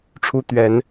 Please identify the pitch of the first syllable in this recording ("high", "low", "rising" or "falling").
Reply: high